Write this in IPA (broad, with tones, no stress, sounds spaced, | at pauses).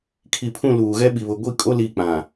kʰ i˨ pʰ ũ˦˨ l uː˨ ɣ ɛ˦ ɓ i˨ β ʊ˨ ɡʷ i˦˨ kʼ o˦ l i˦˨ k͡p ã˨